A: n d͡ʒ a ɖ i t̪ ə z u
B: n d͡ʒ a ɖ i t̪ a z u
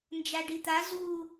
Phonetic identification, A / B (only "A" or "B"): B